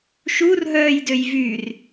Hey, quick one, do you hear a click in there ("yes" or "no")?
no